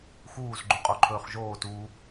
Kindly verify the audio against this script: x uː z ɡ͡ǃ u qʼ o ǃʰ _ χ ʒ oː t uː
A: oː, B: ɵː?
B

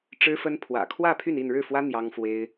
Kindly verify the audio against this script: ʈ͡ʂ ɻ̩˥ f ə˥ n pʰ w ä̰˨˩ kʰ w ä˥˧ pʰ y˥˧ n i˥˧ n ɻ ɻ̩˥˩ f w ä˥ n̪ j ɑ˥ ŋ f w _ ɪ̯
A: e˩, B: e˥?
B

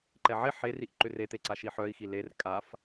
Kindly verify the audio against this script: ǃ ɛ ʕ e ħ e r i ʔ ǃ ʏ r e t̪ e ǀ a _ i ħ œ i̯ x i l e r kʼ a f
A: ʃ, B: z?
A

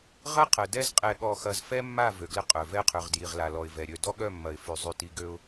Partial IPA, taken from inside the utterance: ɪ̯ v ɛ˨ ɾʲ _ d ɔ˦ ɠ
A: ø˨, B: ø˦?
A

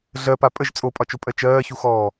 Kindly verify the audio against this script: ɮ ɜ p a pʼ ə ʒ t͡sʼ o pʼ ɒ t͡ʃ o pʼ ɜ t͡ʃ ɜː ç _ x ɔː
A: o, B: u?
B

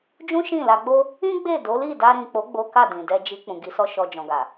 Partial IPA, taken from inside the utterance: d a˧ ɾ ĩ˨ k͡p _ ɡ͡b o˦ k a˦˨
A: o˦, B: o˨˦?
B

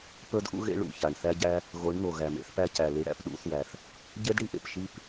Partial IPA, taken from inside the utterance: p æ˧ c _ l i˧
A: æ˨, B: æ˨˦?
A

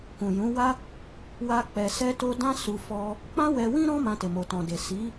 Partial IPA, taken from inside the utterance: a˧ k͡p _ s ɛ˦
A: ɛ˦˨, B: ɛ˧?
B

